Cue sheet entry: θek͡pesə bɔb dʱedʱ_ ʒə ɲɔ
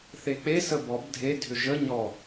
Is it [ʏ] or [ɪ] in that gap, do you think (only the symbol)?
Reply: ʏ